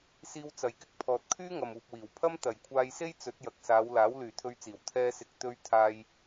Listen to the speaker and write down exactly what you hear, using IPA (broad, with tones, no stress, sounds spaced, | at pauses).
s iː˧ w t͡s ɐ˨˧ j k ɪ˥ k̚ pʰ ɔː˨ t̚ kʰ yː˥ ŋ ɐ˨ m uː˧ p̚ w iː˨ w pʰ ɐ˥ m t̪ ɐ˨ j kʷʰ aː˧ j s e˥ j t͡s ɵ˨˥ t̚ j ɐ˨ k̚ s aː˨˧ w l aː˨˥ w l yː˨ t̪ʰ ɵ˧ ɥ t͡s iː˨˩ w t̪ʰ ɛː˧ s ɪ˨˥ k̚ t̪ ɵ˧ ɥ t̪ʰ aː˧ j